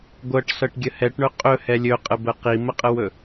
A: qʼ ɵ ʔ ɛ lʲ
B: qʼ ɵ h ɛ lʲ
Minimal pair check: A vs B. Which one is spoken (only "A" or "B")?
B